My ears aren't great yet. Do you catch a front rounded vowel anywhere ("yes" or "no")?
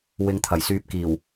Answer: yes